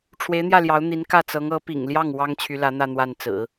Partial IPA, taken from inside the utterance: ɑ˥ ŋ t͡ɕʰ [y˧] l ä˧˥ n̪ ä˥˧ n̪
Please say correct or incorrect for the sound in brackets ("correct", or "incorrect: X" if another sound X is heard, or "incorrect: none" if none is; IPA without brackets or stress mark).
incorrect: y˧˥